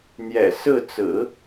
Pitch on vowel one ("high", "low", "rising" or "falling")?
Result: low